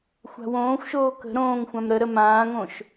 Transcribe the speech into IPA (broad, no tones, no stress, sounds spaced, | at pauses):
xʷ a̤ w õː xʷ ʃ oː k ə̤ ɾ õː ŋ xʷ ã m ɾ ə ɾ ə m ãː ŋ õ ʃ